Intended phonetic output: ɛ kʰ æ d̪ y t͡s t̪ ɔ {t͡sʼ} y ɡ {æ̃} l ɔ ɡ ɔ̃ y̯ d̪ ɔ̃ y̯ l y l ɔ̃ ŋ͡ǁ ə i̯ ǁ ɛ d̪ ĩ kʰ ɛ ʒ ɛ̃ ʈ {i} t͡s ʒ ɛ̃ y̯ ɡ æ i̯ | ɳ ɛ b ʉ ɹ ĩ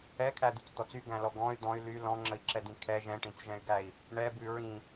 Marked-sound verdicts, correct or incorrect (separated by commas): incorrect, correct, incorrect